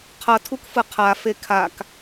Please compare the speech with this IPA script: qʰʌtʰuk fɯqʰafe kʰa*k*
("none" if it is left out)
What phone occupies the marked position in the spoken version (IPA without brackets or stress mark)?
k